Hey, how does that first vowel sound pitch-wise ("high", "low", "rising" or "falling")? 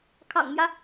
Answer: low